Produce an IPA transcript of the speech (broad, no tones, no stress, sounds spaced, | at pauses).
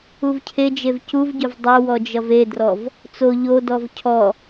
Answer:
u v cʰ e d͡ʒ e v c u v ɟ ɵ v dˤ o w ɔ d͡ʒ ʌ v e d r ɔ v | t͡s o ʎ o d ɔ v cʰ ɔ